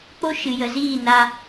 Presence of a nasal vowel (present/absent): absent